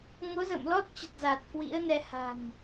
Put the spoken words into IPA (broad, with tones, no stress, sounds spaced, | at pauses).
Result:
ŋ o˨˦ z ə̰ː˧˨ m l ɔ˦˥ t̚ t͡ɕ ə˨˩ t̚ z a˨˩ t̚ k w ḭ˧˥ ə̯ n ɛ˧ h a̤˨˩ n